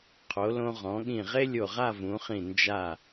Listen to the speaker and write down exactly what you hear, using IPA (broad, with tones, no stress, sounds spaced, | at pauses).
qʰ o˩˧ l õ˧ ʁ ɔ̃˩˧ ɠ ĩ˧˩ ʁ e˥ lʲ o˧˩ ʁ a˥˧ v ũ˩˧ χ ĩ˧˩ n d͡ʒ a˧˩